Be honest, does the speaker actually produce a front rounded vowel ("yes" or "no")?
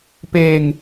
no